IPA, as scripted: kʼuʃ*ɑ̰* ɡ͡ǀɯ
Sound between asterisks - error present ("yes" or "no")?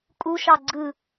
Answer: yes